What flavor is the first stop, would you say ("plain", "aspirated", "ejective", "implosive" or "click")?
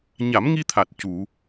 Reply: aspirated